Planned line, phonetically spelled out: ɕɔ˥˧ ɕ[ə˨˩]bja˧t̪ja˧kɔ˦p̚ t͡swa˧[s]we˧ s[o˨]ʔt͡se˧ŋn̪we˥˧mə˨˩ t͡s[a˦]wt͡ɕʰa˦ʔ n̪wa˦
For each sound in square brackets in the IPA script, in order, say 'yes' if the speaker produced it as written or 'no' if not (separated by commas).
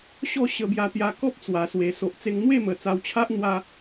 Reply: no, yes, yes, no